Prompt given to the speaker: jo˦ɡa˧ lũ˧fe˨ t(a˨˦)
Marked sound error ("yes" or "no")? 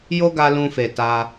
yes